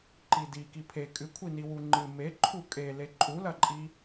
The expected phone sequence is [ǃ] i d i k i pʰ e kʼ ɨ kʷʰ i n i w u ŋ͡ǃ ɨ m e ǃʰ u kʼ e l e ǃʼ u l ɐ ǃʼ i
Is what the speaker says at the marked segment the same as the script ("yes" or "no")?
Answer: yes